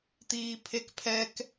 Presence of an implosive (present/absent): absent